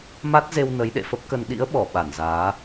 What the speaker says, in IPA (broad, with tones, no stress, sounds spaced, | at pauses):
m a˦˥ t̚ z e˧ w n ə˨˦ j ɗ ḛ˧˨ f ə˦˥ p̚ k ə˧ n ɗ ḭ˧˥ ə̯ ɓ ɔ˧˩ ɓ a˧˩ n z aː˨˦